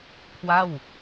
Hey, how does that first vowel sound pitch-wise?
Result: falling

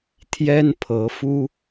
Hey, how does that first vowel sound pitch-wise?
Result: high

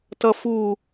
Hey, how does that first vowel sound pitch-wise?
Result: high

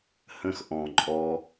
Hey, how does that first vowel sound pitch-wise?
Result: high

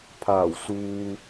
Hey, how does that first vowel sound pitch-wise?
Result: low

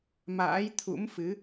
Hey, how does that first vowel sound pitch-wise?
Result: rising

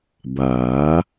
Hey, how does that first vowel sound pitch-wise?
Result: rising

